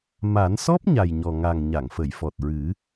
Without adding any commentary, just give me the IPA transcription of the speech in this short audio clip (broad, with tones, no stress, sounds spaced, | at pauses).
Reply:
m a˨˩˦ n s ɔ˦˥ p̚ ɲ a˨˩ j ɲ ɔ˨˩ ŋ a˨˩ ŋ ɲ a˨˩˨ ŋ f ə˨˩˨ j f ɔ˨˩ t̚ ɹ ɨ˨˩˦